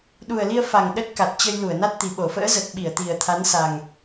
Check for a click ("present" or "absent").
absent